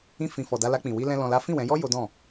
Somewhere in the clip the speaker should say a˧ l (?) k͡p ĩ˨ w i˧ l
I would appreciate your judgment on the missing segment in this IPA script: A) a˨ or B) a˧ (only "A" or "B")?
B